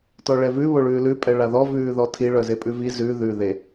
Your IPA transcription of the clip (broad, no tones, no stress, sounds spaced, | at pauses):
t ɔ ɭ ɛ v ʉ β o ɭ ʉː l ʉ pʼ ɛ ɭ a ð ɔ v ʉː ð ɔ tʰ i ɭ œ z e pʼ ʉ v i z ʉ ð ʉ ð e